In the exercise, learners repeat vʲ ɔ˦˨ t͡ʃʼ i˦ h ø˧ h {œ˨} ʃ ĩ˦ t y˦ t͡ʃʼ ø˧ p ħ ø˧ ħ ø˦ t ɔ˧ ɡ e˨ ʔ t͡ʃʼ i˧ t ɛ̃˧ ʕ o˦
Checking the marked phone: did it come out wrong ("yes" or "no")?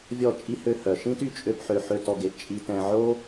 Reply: no